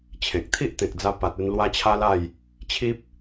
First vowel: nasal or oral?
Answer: nasal